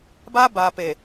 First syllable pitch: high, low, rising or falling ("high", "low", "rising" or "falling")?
high